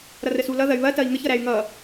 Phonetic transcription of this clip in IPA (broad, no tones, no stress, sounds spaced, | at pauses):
ɾ ʌ r ə s u l ʌ ð ɐ y̯ β ɐ t ɐ i̯ ŋ ə ç ʌ ɾ æ y̯ ŋ ʌ